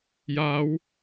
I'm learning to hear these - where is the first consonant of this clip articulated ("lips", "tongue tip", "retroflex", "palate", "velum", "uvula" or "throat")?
palate